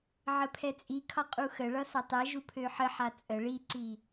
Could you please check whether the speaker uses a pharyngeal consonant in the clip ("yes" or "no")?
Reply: yes